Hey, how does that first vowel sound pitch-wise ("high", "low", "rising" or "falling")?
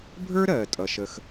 high